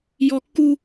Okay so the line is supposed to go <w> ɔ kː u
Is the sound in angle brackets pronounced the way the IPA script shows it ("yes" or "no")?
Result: no